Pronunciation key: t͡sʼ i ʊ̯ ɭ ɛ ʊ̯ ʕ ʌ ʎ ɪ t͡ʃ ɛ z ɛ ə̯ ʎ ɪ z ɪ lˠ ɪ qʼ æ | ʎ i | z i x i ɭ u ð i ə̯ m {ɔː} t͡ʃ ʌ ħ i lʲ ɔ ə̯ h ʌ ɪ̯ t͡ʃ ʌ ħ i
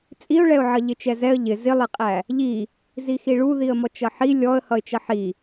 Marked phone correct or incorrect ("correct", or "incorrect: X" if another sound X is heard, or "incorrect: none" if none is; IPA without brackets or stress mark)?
incorrect: ɔ